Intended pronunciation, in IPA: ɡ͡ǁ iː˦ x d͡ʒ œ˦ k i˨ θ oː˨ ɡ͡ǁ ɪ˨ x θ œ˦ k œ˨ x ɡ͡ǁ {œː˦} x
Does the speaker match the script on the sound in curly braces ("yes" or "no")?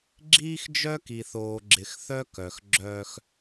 yes